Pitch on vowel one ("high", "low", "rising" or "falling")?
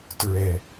low